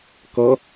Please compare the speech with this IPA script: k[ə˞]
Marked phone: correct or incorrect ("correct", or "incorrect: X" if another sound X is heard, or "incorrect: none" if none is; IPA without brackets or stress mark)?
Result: incorrect: ʌ